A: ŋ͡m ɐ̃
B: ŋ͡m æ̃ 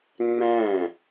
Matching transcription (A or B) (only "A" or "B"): B